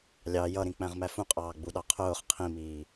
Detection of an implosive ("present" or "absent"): present